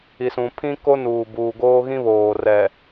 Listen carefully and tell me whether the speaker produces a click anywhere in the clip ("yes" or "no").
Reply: no